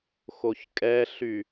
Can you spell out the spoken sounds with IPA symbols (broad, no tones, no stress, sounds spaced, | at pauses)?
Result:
x o ç kʼ ɛ ɬ y